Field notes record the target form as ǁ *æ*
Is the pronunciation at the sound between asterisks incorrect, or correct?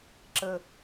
incorrect